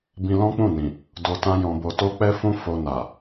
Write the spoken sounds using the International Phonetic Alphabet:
bĩ˧lɔ̃˦k͡pũ˦˨nĩ˨ | do˧tã˦jɔ̃˧bo˧ to˦k͡pɛ˦fũ˦ fo˧na˨

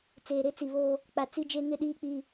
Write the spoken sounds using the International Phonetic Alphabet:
t͡seː˨ɾe˦t͡si˨βo˦ | k͡pa˨t͡si˦d͡ʒe˦ ŋɪ˦ ɗiː˦k͡pi˦

